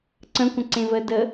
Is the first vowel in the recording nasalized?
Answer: yes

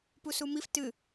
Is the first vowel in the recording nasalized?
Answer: no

